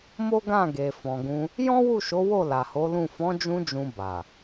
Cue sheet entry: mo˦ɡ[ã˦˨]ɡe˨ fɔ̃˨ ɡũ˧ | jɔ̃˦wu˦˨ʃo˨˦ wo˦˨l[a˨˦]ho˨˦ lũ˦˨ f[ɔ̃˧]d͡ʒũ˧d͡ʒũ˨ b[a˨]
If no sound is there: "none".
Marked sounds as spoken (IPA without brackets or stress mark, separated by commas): ã˦˨, a˨, ɔ̃˨˦, a˨